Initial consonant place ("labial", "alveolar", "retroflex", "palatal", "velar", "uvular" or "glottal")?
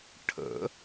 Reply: retroflex